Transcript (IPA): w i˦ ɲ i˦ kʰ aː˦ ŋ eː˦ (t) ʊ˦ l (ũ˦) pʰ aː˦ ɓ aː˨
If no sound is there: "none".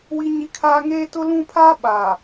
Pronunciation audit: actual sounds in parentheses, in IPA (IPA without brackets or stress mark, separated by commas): t, ũ˦